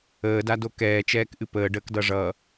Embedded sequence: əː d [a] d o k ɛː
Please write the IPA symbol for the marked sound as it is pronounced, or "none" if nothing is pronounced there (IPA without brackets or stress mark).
a